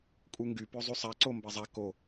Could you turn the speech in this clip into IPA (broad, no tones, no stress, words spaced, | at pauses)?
kʼuŋɡy pøzˤysˤa ǀombɛzˤa ko